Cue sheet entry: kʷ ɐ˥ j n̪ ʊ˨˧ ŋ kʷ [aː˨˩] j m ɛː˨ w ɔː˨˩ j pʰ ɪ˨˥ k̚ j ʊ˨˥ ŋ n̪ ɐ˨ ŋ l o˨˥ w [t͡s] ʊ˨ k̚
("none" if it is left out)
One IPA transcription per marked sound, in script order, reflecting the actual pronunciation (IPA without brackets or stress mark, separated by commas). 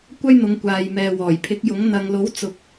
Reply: aː˨, t͡s